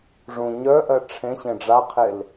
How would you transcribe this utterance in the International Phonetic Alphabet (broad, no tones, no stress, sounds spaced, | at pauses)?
ʐ ũ ɲ œ ʔ ɜ ʈ͡ʂʰ ẽ ɕ ẽ ɖ͡ʐ a qʰ e l